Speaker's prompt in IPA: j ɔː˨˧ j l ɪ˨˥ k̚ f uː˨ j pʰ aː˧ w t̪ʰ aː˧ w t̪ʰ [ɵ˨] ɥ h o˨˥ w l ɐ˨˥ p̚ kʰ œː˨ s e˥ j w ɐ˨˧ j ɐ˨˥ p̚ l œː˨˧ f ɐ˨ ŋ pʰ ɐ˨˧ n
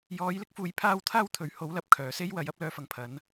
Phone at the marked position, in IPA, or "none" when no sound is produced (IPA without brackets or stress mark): ɵ˨˥